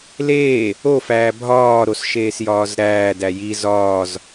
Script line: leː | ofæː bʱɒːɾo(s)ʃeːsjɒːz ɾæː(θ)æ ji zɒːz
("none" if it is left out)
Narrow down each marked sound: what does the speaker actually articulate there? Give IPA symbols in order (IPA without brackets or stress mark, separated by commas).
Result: s, d